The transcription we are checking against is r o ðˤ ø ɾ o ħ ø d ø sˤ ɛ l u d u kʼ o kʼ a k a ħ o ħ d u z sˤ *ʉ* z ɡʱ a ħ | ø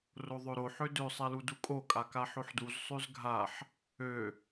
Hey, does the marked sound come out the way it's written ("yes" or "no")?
yes